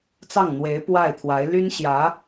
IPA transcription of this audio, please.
t͡sɑ˥˩ŋn̪we˧˥ɪ̯ pwa˥˩ɪ̯ t̪ʰwa˧˥ɪ̯ ly˥nɕjä˧˥

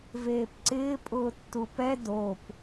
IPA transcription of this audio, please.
veːpǀɪː pʼʊːtːupɛ dop

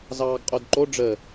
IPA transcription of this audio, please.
zɑːɡqʼodǃo ɖ͡ʐə

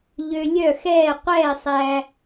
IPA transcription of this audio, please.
ʎø˧lʲœ˥˨xɛː˥˨ qʷɛː˥˨sˤæ˧

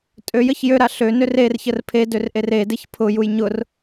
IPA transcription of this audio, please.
tʼøjəç jøɾa ɬønør erçər pʰedør ʔeredeç pʰʊjuj ɲʊr

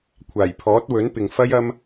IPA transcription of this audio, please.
kʷʰaː˨˩jpʰɔː˨˥t̚wɵ˨˥npɪ˨ŋ fɐ˥j ɐ˥m

